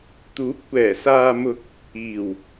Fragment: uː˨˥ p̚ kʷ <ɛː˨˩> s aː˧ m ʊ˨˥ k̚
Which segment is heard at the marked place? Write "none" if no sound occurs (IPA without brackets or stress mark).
ɛː˨˩